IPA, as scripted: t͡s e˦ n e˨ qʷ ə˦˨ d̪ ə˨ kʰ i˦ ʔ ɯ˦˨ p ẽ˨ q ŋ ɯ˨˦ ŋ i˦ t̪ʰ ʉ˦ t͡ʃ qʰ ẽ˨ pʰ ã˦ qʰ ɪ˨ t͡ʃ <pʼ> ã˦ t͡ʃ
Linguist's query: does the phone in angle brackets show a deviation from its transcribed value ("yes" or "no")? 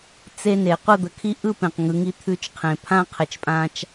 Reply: no